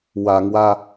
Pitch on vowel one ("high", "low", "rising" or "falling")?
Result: low